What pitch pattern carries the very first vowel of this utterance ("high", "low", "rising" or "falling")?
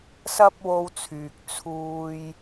high